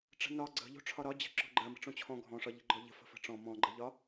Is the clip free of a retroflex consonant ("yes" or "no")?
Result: no